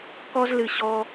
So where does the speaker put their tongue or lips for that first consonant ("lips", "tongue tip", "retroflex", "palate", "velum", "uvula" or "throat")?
velum